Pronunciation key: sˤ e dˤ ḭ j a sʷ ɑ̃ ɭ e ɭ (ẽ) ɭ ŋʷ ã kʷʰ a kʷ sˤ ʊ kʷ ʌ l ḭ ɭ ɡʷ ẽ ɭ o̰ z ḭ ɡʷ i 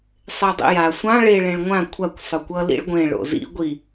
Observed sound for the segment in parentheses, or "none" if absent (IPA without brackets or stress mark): ẽ